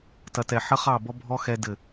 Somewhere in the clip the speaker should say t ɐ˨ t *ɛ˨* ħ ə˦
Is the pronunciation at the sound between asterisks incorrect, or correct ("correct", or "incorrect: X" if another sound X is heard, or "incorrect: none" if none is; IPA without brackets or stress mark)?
correct